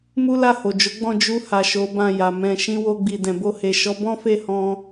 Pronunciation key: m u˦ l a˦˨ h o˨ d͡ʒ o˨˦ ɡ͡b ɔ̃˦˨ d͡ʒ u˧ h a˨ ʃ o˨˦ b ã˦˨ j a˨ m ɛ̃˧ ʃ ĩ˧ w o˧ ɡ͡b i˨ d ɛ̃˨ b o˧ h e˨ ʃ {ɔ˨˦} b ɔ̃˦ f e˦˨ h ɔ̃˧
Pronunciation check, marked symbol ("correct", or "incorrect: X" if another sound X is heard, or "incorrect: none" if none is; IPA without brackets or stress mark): correct